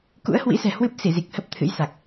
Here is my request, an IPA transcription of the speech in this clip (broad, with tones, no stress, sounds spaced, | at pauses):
k ṵ˧˥ ə̯ h w ḭ˧˥ s ɛ̤˨˩ h w ɨ˦˥ p̚ s i˧˩ z i˨˩ k̚ h ə˦˥ p̚ t̪ʰ ɨ̰˧˥ j s a˨˩ k̚